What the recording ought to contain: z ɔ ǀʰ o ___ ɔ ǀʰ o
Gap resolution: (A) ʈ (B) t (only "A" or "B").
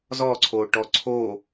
A